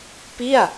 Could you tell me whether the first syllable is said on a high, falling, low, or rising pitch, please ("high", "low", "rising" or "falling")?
falling